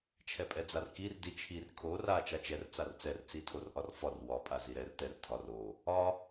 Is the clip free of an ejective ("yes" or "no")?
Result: no